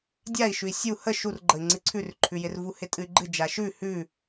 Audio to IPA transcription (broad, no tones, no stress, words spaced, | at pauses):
dʲai̯ʃʉi̯ sʲu hə ʃurɡ͡ǃəi̯ ŋ͡ǀɨǀʰʉrǃʰʉjɪr vuhɪtʼɨy̯ɡ͡ǃɨ d͡ʒaʃʉ hʉ